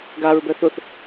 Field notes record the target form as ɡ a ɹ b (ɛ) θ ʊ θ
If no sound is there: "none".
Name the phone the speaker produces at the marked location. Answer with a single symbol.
ɛ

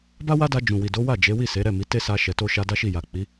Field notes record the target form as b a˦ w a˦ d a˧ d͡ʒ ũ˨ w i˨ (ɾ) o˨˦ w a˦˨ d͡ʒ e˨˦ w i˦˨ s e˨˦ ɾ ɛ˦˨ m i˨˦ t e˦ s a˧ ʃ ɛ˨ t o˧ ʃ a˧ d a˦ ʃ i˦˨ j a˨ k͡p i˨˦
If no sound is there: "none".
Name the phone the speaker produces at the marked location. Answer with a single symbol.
d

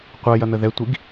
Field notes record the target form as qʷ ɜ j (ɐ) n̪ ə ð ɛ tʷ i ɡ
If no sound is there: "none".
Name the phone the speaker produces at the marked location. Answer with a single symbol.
ɐ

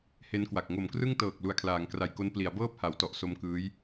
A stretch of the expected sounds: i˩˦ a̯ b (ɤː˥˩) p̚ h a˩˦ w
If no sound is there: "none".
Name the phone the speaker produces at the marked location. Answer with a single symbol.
ɤː˥˩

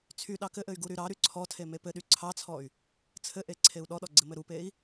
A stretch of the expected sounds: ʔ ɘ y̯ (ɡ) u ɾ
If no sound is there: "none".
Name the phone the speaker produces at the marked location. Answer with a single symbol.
ɡ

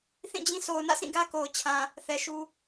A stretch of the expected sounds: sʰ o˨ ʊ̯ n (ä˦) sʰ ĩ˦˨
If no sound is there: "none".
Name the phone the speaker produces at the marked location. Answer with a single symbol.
ä̰˦˨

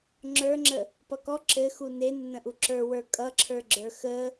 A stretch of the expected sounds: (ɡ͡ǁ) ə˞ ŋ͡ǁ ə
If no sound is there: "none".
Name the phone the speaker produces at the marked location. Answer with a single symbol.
ŋ͡ǁ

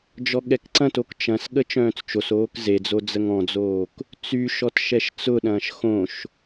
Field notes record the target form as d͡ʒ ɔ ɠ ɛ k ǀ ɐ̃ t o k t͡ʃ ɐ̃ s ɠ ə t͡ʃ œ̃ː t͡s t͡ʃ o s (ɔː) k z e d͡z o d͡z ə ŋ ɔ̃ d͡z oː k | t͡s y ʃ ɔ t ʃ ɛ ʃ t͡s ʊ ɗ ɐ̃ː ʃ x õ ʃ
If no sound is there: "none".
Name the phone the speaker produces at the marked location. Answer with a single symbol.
oː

